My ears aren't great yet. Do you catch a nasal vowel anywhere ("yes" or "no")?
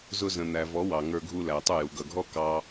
yes